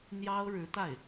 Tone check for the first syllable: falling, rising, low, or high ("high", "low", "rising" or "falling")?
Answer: high